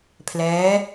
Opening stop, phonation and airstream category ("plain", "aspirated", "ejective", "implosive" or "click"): aspirated